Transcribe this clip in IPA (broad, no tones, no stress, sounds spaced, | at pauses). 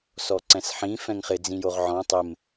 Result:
s ɔ ǀ ɛ̃ s ħ ĩ f ɛ̃ ŋ χ ɪ d͡z ĩ j o ʁ ʕ ɔ̃ tˤ ɪ m